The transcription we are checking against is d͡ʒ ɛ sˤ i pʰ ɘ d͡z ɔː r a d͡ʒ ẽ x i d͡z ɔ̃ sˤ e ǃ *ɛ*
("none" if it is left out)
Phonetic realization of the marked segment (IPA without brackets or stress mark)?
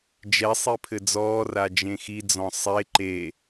e